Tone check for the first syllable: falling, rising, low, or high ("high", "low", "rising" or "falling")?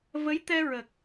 rising